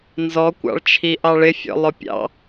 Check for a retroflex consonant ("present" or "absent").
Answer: present